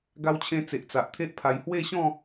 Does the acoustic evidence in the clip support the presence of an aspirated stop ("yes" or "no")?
yes